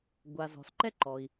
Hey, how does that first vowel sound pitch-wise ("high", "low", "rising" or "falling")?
low